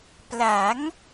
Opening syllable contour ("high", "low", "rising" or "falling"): rising